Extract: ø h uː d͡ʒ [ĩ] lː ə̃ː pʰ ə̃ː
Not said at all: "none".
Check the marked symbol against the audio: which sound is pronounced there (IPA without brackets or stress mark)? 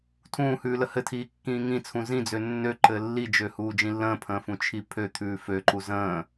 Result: ĩ